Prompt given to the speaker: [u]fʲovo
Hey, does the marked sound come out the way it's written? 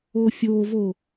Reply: no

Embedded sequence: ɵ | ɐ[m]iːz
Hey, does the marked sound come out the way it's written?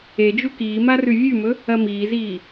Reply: yes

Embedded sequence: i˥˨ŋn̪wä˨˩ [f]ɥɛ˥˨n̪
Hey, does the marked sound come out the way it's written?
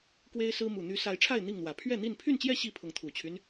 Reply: no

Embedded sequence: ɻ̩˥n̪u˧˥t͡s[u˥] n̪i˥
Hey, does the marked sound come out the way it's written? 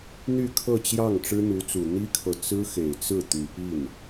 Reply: no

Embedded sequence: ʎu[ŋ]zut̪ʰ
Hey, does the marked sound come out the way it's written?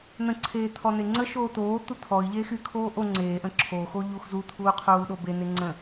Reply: no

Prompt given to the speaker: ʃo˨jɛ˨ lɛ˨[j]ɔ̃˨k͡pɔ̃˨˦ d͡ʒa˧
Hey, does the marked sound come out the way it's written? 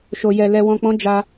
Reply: no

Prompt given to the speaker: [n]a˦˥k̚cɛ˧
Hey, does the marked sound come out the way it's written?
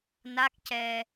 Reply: yes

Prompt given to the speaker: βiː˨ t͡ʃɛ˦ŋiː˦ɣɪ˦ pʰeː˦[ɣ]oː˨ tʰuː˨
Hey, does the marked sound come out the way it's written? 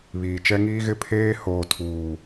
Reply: no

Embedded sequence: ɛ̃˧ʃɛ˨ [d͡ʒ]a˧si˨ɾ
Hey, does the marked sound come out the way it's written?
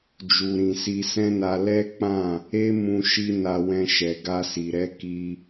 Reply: no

